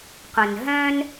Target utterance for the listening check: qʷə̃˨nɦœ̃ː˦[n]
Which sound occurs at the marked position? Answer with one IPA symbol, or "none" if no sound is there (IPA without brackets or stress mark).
n